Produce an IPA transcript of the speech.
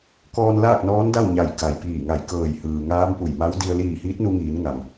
kɔː˧n laː˥˨k̚nɔː˧˥nda˥˨w ɲa˧˩j ka˩jpiː˧˩ŋa˧˩j kɤː˧˩jhɯː˩ ŋaː˧˥mpu˧˩jma˧˥w di˧ə̯ liː˧˩ hiː˧˥t̚nu˧ŋiː˩˧n ŋa˩m

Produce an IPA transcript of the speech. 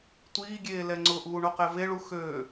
tʷiːɡʲeː lɛŋ͡ǀʊʔuː ɳoqɛveɭu xø

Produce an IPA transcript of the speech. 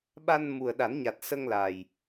ɓa˧n mu˨˩ə̯ɗa˨˩˦nɲa˨˩t̚sə˧ŋ la˨˩j

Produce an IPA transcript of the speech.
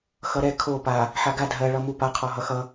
xʌɾɛ kʰo pa | ħaɡa dʱɜ ɭʌmupa qʰɔɦʌxʌ

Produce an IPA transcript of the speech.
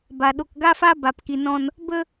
ba˨ ɗo˨kɡa˦fa˦ ba˨pki˨nɔ̃˧n | bə˧

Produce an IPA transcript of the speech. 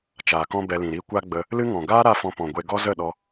t͡ʃaː˨kɔ̃˦bɛ˧lĩ˨ ɾi˦ kʷa˦ɡ͡bə˧ | lɨ˦ŋɔ̃˨ ɡaː˦ ɾa˦fɔ̃˧ pɔ̃˨ɡʷe˧ ɡɔ˦zə˦˨ɗɔ˧

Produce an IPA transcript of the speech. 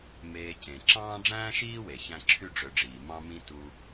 meː˨cẽ˩ ǁɑ̃ː˥ ɖ͡ʐæ̃ː˥ʃiː˥we˩ çæ̃˥ ǁʰy˥ɖ͡ʐø˨ɖ͡ʐiː˩ mɑ̃˥mĩ˥ tu˦

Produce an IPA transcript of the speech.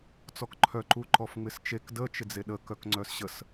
t͡sɔkǃʰœ ǃuǃɔfŋ͡mɪst͡ʃek də t͡ʃɪd͡zeɗə kœkŋ͡ǀœsɕəs

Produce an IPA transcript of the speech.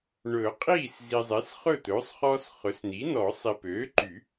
ɳɵ˨˩˦ qʼiː˥˩szi˨zˤe˩˥s χɵ˥˩t̪ɵː˩˥sˤχɔː˦s χɵ˩˥sni˩˥nɔ˨˩˦ sˤi˨pøː˩˥ǃy˨˩˦

